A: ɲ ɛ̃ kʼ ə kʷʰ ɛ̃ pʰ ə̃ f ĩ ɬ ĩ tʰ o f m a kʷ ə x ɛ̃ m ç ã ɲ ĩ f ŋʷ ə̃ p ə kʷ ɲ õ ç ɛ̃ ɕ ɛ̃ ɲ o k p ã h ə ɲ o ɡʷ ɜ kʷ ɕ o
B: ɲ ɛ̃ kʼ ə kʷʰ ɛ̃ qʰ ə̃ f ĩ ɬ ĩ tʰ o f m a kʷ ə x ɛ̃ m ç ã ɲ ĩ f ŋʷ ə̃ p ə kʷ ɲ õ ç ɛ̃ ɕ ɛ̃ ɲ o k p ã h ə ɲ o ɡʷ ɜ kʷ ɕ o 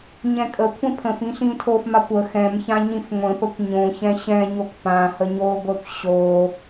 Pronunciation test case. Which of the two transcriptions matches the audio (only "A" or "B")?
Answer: A